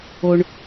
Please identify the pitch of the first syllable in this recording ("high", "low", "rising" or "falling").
low